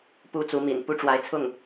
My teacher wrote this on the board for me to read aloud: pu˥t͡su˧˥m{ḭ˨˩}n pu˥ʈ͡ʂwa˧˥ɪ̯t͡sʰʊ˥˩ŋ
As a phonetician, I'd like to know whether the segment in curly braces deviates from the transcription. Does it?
no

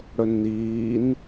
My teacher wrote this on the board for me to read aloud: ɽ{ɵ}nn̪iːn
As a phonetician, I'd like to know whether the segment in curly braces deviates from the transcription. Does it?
no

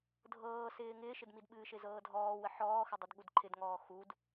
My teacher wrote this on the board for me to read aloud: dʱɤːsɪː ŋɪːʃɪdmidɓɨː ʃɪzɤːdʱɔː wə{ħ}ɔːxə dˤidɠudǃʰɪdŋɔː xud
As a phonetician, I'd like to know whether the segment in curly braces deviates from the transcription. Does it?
no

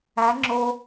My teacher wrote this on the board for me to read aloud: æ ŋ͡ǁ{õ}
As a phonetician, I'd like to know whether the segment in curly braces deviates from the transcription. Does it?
yes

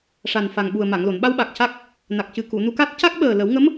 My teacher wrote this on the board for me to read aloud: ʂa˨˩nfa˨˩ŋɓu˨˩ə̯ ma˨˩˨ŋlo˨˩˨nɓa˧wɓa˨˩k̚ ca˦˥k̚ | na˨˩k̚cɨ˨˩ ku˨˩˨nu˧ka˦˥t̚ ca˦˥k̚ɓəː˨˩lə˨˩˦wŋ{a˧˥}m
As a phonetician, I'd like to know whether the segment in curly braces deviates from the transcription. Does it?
yes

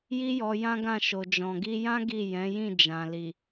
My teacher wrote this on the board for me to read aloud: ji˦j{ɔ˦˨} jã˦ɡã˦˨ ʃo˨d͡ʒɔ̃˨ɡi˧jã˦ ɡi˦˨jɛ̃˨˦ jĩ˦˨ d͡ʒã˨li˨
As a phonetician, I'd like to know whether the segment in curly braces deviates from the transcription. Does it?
yes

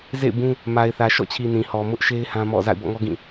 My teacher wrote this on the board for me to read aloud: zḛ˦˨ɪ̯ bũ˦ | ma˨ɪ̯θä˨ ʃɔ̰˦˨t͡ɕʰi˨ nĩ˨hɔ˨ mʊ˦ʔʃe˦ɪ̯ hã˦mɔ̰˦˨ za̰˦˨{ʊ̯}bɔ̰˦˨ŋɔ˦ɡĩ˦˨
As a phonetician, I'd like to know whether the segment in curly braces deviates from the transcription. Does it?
yes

